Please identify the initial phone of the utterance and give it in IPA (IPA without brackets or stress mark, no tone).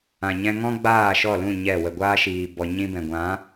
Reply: ã